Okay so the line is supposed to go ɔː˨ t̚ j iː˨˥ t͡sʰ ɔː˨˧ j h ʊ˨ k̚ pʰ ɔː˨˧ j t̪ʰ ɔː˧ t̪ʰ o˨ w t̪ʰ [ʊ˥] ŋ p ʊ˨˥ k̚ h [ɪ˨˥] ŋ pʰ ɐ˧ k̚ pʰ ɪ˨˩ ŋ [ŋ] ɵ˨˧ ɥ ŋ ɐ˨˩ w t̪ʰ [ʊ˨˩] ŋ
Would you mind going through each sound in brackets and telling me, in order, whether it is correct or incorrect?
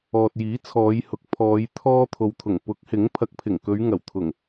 incorrect: ʊ˨˩, correct, incorrect: k, correct

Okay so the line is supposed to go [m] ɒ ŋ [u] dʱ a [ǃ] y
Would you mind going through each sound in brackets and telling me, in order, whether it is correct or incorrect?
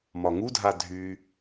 correct, correct, incorrect: dʱ

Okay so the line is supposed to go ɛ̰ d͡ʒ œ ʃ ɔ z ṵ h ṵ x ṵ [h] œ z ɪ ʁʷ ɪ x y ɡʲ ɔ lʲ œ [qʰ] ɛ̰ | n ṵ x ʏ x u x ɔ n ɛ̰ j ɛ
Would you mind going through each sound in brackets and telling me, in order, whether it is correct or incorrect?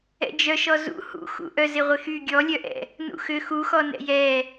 incorrect: ʔ, incorrect: ʔ

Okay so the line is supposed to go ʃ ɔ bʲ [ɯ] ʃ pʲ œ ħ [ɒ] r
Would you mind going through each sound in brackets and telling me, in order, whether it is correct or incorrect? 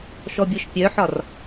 correct, correct

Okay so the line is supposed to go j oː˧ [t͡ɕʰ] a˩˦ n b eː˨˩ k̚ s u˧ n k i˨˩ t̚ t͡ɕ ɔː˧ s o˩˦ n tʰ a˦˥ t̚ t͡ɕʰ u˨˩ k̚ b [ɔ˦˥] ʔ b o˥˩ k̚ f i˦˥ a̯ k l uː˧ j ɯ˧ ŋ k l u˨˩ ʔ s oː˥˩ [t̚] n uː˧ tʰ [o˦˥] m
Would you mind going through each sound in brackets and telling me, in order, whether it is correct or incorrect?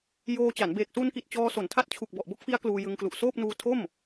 incorrect: t͡ɕ, incorrect: ɔ˨˩, incorrect: p̚, incorrect: o˥˩

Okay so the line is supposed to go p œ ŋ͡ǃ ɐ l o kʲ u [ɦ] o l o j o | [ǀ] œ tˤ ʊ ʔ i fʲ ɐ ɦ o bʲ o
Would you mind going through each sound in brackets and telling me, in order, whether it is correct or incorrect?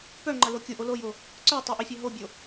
incorrect: ʔ, correct

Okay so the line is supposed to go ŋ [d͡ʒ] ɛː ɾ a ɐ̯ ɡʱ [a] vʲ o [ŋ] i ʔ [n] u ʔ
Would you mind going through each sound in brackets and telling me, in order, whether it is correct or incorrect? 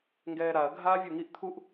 incorrect: ɡ, incorrect: aː, correct, incorrect: t̪ʰ

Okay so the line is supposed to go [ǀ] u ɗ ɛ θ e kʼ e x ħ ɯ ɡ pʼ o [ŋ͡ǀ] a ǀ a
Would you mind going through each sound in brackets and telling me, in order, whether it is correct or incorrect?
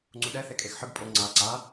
incorrect: ŋ͡ǀ, correct

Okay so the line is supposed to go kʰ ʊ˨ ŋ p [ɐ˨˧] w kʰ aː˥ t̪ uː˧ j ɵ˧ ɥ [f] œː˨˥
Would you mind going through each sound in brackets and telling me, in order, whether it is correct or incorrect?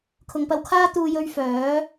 incorrect: ɐ˧, correct

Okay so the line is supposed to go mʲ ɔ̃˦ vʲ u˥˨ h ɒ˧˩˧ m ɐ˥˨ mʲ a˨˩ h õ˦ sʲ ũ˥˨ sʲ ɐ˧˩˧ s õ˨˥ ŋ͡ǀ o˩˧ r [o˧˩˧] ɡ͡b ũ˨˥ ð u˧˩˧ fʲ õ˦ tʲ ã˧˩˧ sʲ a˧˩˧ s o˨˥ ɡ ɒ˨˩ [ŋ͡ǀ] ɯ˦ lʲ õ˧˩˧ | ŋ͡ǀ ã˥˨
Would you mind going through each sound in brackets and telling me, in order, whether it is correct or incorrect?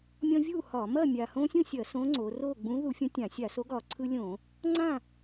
incorrect: o˥˨, incorrect: ǀʰ

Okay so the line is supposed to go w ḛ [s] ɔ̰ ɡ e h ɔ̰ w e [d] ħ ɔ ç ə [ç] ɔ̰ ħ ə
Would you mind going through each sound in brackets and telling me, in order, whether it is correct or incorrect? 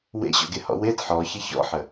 incorrect: ɕ, correct, correct

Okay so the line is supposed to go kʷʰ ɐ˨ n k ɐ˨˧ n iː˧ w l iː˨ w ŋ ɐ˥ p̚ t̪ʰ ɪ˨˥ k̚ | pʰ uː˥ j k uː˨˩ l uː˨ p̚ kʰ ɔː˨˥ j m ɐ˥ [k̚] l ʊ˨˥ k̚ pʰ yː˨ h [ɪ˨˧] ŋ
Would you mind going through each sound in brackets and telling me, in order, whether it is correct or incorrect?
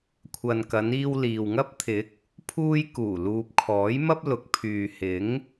incorrect: p̚, incorrect: ɪ˨˥

